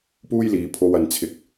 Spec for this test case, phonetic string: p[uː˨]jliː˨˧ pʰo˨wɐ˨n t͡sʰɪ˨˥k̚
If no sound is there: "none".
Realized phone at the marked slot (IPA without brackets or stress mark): uː˥